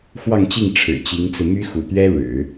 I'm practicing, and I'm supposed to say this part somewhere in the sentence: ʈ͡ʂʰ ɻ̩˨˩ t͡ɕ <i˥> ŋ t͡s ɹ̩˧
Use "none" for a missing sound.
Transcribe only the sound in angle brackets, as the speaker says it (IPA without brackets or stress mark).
i˧˥